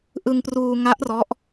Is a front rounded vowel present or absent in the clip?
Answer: absent